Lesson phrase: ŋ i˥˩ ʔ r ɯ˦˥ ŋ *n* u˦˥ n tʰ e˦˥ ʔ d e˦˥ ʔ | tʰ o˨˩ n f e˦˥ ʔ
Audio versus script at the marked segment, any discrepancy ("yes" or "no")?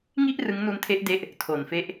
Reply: no